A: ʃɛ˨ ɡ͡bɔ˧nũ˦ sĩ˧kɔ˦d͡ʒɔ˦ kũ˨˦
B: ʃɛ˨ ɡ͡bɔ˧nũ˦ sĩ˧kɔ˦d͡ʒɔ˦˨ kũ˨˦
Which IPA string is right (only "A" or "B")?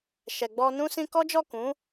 B